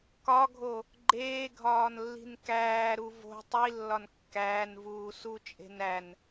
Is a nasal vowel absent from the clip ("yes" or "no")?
yes